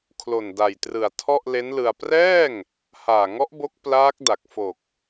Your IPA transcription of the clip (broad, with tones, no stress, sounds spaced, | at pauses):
kʰ l o˨˩ n d a˨˩ j t r ɯ˨˩ a̯ tʰ ɔ˥˩ ʔ l e˦˥ n l ɯ˧ a̯ p r ɛː˥˩ ŋ | h aː˨˩ ŋ ɔ˦˥ ʔ b o˦˥ k̚ p l aː˦˥ k̚ d a˨˩ k̚ f o˨˩ k̚